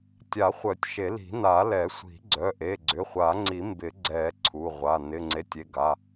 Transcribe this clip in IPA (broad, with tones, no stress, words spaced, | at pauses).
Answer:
tʲa˨˩˦χʷœ˨˩˦tʲ ʃe˨˩˦li̤˨˩˦na˨˩˦ lɛ˨˩˦sʷi̤˨˩˦ ɡ͡ǀœ˩˧˩ʔe˩˧˩ ɡ͡ǀʏ˩˧˩χʷa˨˩˦ŋ͡ǀi˨˩˦ mbɪ˨˩˦ɡ͡ǀɛ˨˩˦ ǀʰu˩˧˩ʁʷa˩˧˩ nɪ˩˧˩ŋ͡ǀe˩˧˩tʲ e˩˧˩ɡa˩˧˩